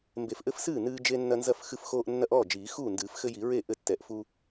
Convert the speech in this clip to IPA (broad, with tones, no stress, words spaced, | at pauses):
mbe˨˩˦fʔɘ˦fsɨː˥˩ nɨː˦d͡ʒe˦ nːɐ˦nzɐ˥˩fxɨ˦fxoː˦ʔ nːɐ˦ʔɔː˥˩ d͡ʒiː˨˩˦ xuː˥˩ndɨː˨˩˦fxɘ˦ji˨˩˦ ɹe˥˩ ʔɘ˥˩ tːɛ˨˩˦ʔfu˦